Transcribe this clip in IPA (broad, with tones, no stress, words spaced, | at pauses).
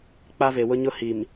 k͡pa˦ve˨wʊ˦ɲʊ˦ hi˨m